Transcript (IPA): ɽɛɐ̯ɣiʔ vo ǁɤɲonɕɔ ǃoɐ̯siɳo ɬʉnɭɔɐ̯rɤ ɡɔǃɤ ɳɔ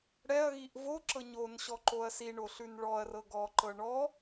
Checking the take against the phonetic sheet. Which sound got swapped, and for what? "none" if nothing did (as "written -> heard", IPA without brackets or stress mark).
none